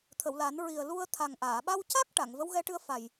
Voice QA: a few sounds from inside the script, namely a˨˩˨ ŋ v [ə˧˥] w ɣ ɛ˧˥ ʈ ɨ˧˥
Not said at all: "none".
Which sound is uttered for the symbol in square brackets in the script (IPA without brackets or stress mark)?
ə˧˥